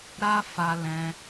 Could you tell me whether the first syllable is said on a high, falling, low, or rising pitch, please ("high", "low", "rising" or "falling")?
high